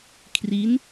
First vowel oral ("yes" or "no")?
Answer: yes